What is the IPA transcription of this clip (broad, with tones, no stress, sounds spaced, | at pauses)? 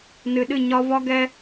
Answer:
n ɨ˨ ɗ ɨ˦˨ ɲ ɒ˦ v ɒ˦ ɡ ɛ˦